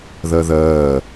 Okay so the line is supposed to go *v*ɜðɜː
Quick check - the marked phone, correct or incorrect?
incorrect